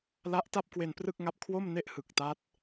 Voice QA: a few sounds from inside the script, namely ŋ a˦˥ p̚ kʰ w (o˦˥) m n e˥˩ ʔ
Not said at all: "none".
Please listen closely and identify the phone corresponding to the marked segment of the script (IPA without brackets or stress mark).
o˥˩